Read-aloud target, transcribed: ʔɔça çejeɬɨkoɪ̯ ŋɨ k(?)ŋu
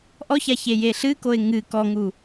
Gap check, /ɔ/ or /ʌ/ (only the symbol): ɔ